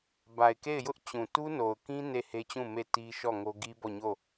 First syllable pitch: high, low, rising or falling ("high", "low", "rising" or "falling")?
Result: low